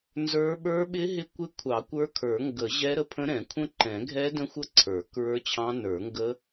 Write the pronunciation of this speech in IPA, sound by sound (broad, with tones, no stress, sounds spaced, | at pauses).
n z ə˞˦˥ ɓ ə˞˦˥ ɓ ɪ˦˥ ɦ ɪ˦˥ kʷ ɪ˦˥ kʷʰ ɑ˨˩˦ kʷ ə˞˦˥ kʰ ə˞˨˩˦ ŋ ɡ ə˨˩˦ ʑ ɛ˦˥ ɾ ə˦˥ pʰ ə̃˦˥ ɾ ɛ̃˨˩˦ kʷʰ ə̃˦˥ ǃ ɛ̃˨˩˦ ɡʱ ɛ˦˥ d ə̃˦˥ xʷ ə˦˥ ǀʰ ə˞˨˩˦ k ɹ ə˞˦˥ t͡ɕʰ ɑ̃˦˥ n ə˞˨˩˦ ŋ ɡ ə˦˥